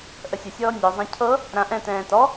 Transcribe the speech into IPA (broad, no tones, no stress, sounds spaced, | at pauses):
ʔ ə sʲ ə sʲ ɔː nʲ ɔ zˤ ã cʰ ɤ | ɾ ã ʔ ɛ̃ t ɛ̃ː t ɔ